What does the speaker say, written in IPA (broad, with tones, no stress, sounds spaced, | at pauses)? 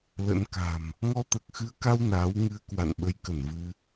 l ə̰˧˥ n k a̤˨˩ m | ŋ ɔ˧ t̪ əː˨˩ k̚ x ɨ˨˦ ə̯ k a˧ w n aː˨˦ w ŋ ɨ˧ ə̯ k w a̰˧˨ n ɓ ə˨˦ j k ə˧˩ n v ɨ˧